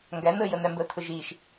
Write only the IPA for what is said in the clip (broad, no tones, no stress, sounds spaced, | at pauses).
ŋ ɡ æ n̪ əː j ə n̪ æ m b əː t̪ʰ ʊ ʒ iː ʃ